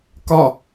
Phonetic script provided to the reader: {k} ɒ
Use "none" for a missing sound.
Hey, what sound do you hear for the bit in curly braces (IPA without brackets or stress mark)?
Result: k